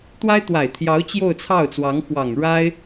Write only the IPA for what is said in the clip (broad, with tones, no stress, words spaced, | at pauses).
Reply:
t̪wa˥ɪ̯t̪wa˨˩ɪ̯t̪ʰjɑ˧˥ʊ̯ t͡ɕjo˥˧ʊ̯t͡sʰɑ˥˩ʊ̯t͡swɑ˧˥ŋ xwɑ˨˩ŋ ɻa˥ɪ̯